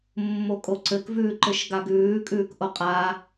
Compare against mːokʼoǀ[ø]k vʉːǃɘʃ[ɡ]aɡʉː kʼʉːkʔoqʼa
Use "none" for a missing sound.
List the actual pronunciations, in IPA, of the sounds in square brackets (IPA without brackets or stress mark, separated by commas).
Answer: ɘ, ɡ